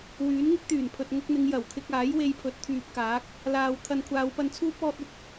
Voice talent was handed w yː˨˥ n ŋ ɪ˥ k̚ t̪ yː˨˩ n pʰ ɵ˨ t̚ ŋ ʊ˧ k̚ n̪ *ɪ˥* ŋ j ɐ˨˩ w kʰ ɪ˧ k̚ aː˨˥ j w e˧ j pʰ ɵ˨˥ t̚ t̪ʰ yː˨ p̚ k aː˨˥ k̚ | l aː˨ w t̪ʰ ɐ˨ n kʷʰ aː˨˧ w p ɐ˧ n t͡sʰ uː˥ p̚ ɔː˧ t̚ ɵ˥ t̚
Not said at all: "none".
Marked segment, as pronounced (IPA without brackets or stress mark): ɪ˨˧